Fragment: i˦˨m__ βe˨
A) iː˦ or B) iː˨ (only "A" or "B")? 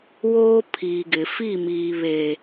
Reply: B